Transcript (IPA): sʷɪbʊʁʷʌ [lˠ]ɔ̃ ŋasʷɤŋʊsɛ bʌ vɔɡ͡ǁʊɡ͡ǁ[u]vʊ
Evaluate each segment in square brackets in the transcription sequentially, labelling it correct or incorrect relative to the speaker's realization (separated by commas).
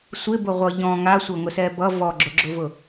incorrect, incorrect